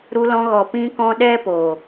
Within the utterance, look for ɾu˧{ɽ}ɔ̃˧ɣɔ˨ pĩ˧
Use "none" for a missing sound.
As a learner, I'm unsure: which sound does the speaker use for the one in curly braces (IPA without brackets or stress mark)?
l